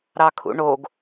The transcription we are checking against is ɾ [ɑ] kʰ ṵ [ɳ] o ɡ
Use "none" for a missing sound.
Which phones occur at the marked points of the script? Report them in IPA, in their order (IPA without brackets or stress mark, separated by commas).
ɑ, ɳ